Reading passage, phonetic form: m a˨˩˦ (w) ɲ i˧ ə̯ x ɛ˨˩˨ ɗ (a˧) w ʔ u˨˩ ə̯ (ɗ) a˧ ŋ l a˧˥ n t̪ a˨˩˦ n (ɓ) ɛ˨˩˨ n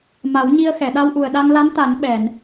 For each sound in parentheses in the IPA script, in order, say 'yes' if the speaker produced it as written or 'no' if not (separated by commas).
yes, yes, yes, yes